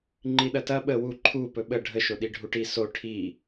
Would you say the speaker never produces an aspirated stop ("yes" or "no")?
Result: no